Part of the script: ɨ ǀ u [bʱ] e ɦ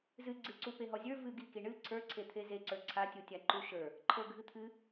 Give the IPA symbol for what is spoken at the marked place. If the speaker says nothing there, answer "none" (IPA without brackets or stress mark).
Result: p